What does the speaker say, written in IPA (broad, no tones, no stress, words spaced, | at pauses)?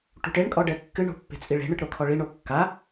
ʈṳʈeɳ kʼɔɖɛkːɨ ɳo̤pːe̤t͡sʼiɭe̤ ɳɨʈɾokʰɔɭi ɳokːa